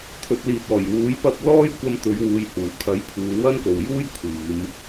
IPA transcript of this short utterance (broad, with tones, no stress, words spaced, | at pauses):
t̪ʰɵ˨t̚liː˨t̚ɔː˨˩j wuː˨˥jpɐ˧p̚ lɔː˥jkʷɐ˧mt̪ɵ˨˧ɥ wuː˨˧jhuː˨˩kʰɐ˨˥j pʰuː˨˧wɐ˥nko˨w juː˥jkʷʰiː˨˧m